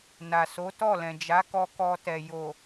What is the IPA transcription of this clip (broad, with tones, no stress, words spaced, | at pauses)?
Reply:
na˨so˨˦tɔ˦˨lɛ̃˨ d͡ʒa˨˦kɔ˧kɔ˧tɛ˨ jo˨